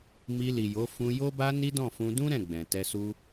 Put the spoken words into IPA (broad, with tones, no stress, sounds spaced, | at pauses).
m i˧ l i˨ j o˨˦ f ũ˧ j o˦ b a˦ n i˦ d ɔ̃˦˨ f ũ˧ d ũ˦ ɾ ɛ̃˦˨ ɡ͡b ɛ̃˨ t ɛ˧ s u˦